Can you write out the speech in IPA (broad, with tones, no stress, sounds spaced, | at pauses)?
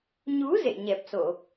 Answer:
ɲ u˨˦ z ḛ˧˨ ɲ ɛ˨˩ p̚ s o˧˩˨